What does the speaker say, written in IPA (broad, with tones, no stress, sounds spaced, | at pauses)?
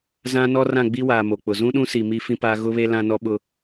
z ã˦ n ɔ˦ r ã˦˨ ɡ͡b i˦ w aː˨ m o˨ k͡p ʊ˨ z ũ˦ ɗ ũ˦ s i˨ m i˦ f ĩ˦ p aː˦ ɣ ʊ˦ β e˦ l ã˦ n ɔ˦ ɓ ʊ˦